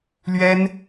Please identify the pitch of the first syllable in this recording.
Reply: high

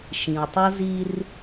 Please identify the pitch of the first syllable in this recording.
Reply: low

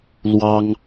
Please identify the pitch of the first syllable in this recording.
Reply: high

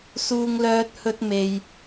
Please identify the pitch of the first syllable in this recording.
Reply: high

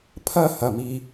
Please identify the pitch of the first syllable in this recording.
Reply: falling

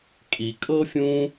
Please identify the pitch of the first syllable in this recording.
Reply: low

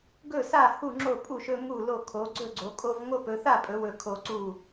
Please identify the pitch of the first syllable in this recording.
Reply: falling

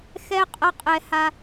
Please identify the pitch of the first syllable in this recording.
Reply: high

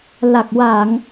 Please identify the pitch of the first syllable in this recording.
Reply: low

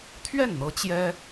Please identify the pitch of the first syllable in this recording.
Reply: falling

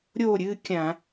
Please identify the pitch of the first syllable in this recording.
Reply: falling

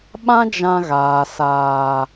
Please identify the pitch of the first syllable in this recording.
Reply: high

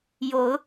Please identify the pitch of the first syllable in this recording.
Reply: rising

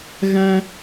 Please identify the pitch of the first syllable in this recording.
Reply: high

